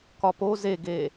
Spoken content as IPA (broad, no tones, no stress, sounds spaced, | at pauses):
k ɒ p o z e ɡ e